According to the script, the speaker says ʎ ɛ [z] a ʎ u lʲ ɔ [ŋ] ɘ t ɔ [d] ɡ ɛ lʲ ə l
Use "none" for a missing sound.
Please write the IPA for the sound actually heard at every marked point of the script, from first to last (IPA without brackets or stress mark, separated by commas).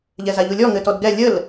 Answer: z, ŋ, d